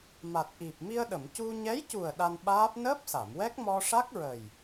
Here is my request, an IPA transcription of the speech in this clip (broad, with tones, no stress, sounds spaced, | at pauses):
m a˨˩ t̚ ʔ i˨˩ p̚ m i˧ ə̯ ɗ ə˨˩˨ m c u˧ ɲ ɛ˧˥ j c u˨˩ ə̯ ɗ a˧ n ɓ aː˦˥ p̚ n əː˦˥ p̚ s a˨˩˨ m w ɛ˦˥ k̚ m ɔ˧ ʂ a˦˥ k̚ ɹ ə˨˩ j